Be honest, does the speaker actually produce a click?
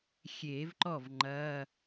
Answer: yes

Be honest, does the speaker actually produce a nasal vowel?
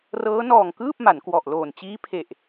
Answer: no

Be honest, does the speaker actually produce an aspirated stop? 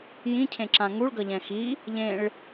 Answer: yes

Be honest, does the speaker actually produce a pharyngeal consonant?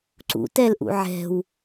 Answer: yes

